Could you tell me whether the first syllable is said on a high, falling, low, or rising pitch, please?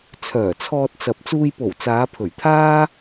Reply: low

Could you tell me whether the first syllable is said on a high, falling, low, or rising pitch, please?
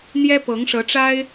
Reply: high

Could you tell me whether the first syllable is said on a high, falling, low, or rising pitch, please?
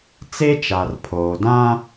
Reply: high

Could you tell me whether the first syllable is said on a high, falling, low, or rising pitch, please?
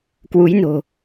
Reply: rising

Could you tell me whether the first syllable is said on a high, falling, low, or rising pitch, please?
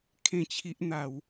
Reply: falling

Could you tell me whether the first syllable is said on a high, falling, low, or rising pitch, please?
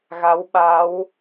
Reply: rising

